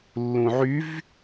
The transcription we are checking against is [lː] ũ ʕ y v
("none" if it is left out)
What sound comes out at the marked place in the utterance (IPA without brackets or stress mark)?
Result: lː